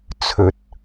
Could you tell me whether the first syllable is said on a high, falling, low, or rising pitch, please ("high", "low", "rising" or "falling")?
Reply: rising